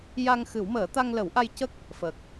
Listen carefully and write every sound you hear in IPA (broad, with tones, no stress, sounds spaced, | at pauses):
j a˧ ŋ x ɨ˨˩˦ w m əː˨˩˦ t̪ a˧ ŋ l ə˨˩˦ w ʔ a˧ j c ə˦˥ k̚ | f ə˨˩ k̚